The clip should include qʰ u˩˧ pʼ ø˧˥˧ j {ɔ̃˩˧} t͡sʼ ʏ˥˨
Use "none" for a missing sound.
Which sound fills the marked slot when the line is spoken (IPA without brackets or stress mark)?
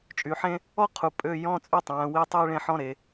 ɔ̃˧˥˧